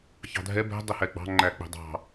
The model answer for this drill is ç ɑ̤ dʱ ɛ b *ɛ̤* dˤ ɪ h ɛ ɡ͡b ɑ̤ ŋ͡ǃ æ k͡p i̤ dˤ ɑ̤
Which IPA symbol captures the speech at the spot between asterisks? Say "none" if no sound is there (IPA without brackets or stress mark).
ɛ̤